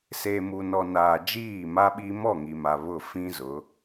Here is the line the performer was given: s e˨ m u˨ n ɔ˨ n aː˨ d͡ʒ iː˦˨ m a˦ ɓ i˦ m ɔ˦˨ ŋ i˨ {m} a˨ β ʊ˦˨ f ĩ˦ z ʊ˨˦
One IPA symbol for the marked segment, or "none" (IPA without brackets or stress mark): m